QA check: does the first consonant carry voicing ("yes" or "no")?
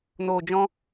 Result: yes